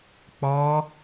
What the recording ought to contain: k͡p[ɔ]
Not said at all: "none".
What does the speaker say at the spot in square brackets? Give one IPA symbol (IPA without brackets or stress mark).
ɔ